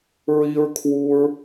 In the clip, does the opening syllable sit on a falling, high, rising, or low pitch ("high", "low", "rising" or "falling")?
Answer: high